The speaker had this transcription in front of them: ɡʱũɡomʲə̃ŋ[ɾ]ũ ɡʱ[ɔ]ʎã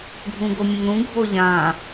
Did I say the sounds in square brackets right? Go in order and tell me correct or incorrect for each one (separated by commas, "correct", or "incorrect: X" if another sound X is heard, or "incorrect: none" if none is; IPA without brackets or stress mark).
correct, incorrect: o